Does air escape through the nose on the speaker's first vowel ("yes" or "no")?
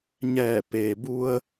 no